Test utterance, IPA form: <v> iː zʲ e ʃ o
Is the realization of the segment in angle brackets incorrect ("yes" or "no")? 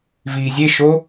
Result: no